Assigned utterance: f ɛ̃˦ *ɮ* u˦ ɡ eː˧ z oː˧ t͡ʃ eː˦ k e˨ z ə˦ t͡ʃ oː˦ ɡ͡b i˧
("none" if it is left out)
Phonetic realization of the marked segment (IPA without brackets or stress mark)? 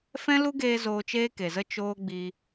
l